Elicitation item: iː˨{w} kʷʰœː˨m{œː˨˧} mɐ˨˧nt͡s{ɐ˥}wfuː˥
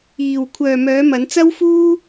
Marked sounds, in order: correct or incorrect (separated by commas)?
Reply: correct, correct, correct